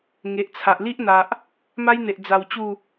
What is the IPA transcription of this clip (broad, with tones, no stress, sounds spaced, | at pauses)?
ŋ e˨ ʔ t͡sʰ a˨ ʔ l i˦ ʔ n̪ a˨ ʔ | m a˦ j n̪ e˨ ʔ d͡z a˧ w t͡ɕ u˥˧